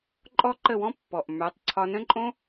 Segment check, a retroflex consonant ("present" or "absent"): absent